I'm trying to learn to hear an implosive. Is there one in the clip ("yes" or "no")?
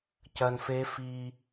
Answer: no